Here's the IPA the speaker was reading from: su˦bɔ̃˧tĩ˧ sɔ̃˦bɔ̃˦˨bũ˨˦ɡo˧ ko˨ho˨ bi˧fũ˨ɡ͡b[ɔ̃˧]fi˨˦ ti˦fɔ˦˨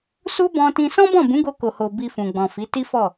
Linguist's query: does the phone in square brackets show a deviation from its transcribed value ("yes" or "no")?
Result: yes